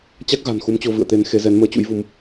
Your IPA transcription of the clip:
t͡ɕa˦˥k̚ɣa̤˨˩n xu˨˦mt͡ɕo˧ vɨ̰˧˨ə̯t̪e˨˦n xe˨˦zɛ˨˦n məː˧t͡ɕṵ˧˥jvu˨˦m

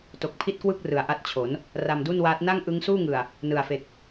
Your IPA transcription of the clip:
to˨˩k̚pʰi˥˩t̚kwɯ˥˩k̚ rɯ˨˩a̯ʔa˦˥t̚t͡ɕʰo˩˦n | ra˧mdu˥˩nwaː˦˥t̚ na˥˩ŋʔɯ˦˥ŋsuː˥˩ŋɯ˨˩a̯ | nɯ˨˩a̯fe˨˩k̚

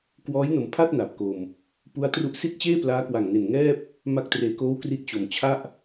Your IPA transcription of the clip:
kwɔː˦˥jno˨˩mpʰa˥˩t̚ na˨˩p̚ko˧m | pu˦˥a̯tru˦˥ʔ si˥˩t̚t͡ɕeː˥˩plaː˦˥ kwa˨˩ŋne˨˩n ŋɛː˥˩p̚ | ma˦˥k̚treː˨˩koː˦˥w kri˦˥t̚ t͡ɕo˨˩m t͡ɕʰa˥˩ʔ

